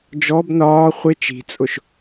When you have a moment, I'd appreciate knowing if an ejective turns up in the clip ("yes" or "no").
yes